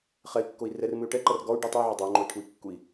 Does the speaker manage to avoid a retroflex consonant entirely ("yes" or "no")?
no